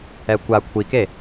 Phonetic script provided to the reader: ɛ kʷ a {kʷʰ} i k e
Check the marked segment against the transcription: correct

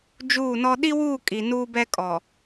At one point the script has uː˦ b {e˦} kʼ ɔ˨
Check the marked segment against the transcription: incorrect: ɛ˦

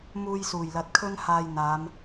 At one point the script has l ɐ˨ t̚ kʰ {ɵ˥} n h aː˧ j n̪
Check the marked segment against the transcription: correct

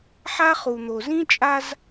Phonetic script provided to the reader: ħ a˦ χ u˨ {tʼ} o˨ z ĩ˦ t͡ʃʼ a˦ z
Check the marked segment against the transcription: incorrect: n̪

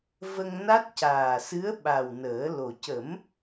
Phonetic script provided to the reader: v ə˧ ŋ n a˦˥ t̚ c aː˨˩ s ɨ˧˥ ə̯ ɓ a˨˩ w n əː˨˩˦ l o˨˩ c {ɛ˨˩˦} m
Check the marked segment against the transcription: incorrect: ə˨˩˦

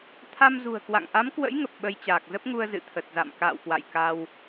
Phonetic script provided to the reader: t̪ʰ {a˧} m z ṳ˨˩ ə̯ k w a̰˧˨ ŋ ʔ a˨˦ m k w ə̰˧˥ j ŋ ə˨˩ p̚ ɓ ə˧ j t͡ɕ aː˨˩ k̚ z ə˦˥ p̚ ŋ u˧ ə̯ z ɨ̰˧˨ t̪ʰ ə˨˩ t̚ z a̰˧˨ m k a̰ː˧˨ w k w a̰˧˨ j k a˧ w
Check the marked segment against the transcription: correct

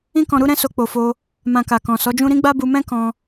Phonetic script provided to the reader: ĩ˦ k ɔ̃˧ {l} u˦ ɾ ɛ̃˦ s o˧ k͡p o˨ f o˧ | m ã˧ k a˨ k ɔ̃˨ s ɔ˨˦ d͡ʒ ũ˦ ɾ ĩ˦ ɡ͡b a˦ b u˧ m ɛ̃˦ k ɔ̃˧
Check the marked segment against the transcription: incorrect: ɾ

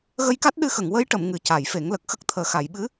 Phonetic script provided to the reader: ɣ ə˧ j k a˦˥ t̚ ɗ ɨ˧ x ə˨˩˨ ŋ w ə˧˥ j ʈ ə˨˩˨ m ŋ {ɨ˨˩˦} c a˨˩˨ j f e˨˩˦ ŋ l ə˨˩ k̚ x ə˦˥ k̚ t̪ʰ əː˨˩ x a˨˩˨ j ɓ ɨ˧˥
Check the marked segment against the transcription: correct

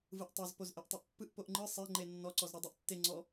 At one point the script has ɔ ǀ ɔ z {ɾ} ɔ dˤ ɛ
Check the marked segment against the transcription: correct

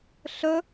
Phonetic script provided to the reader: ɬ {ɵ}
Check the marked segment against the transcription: correct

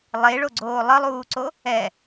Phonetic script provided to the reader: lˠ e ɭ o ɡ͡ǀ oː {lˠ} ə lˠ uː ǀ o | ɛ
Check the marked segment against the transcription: correct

